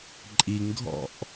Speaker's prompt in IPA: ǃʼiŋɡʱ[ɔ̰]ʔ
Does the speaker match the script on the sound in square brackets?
yes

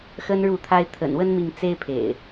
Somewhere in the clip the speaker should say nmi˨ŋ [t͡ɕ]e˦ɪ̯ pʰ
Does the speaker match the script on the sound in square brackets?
no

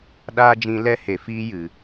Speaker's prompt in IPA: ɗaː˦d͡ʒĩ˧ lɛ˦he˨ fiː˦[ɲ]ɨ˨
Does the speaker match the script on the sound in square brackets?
no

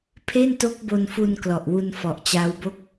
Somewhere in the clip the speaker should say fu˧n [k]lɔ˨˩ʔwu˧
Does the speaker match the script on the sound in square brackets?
yes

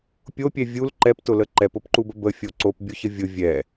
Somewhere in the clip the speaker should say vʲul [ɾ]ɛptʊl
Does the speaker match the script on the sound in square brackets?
no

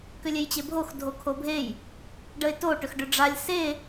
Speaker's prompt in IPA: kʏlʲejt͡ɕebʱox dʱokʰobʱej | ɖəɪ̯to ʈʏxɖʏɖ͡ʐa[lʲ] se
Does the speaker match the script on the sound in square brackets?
yes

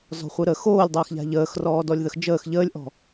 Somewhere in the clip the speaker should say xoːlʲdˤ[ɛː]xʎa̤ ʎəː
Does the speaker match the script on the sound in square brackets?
no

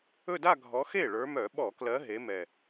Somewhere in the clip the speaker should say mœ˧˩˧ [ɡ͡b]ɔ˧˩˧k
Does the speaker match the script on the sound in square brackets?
no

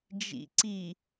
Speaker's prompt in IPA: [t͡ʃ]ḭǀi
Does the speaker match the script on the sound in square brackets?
no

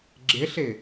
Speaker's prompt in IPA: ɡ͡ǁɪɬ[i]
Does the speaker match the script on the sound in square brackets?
no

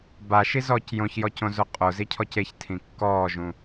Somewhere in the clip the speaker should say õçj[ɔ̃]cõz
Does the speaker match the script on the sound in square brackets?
no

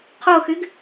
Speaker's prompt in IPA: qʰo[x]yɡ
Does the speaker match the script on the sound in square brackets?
yes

